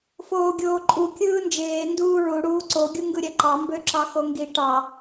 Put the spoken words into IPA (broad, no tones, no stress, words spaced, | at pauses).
foːɡʲoːǃʼu kʲɯːnd͡ʒeː nduːɹu ɽuːǀo ɡʲuŋɡɯɾʲæǃɑ mbøǁɑxoŋɡi ʈɑ